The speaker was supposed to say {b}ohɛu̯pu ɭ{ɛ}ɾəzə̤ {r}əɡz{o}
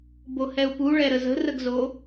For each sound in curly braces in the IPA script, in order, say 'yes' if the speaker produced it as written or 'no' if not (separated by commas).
yes, yes, yes, yes